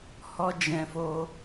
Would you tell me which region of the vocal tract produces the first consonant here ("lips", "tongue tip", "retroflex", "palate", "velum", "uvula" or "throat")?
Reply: throat